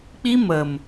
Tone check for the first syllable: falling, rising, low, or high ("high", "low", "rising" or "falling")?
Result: high